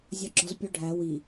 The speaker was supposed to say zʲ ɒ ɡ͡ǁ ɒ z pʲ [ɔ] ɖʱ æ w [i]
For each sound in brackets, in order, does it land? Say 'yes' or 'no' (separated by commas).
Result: no, yes